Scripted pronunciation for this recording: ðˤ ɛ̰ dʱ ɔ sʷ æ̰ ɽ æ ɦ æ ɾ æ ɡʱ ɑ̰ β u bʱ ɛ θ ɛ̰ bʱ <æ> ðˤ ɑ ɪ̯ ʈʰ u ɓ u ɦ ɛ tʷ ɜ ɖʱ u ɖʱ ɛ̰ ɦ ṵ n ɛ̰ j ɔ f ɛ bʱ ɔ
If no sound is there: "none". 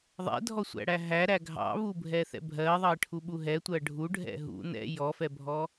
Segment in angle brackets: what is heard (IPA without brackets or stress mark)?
ɜ